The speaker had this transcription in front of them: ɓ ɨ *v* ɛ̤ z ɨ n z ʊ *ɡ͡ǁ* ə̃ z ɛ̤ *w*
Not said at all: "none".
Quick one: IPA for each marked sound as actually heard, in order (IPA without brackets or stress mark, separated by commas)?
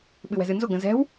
w, ɡ, w